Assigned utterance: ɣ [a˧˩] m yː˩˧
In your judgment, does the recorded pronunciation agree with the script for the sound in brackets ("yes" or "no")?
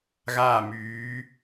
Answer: no